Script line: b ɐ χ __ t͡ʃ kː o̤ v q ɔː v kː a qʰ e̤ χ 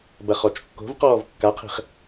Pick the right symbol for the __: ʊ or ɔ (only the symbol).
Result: ɔ